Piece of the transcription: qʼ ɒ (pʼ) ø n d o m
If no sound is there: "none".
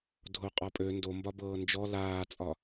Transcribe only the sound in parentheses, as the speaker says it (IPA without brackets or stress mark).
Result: pʼ